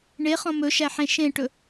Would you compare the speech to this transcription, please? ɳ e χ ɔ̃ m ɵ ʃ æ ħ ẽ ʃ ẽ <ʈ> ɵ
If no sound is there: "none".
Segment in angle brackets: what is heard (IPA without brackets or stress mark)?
ʈ